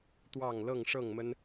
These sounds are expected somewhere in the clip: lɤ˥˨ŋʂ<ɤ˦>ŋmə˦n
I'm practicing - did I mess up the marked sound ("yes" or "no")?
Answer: yes